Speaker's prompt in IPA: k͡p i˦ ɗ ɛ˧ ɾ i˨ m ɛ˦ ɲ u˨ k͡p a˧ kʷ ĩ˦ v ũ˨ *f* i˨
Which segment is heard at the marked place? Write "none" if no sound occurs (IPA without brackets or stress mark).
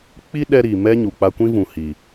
h